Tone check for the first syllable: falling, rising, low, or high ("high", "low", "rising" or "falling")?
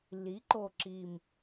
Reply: rising